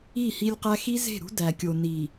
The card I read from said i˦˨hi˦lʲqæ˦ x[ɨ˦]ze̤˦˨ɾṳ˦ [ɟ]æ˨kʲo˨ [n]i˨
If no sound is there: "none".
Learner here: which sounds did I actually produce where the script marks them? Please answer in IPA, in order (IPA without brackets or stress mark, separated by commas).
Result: i˦, d, n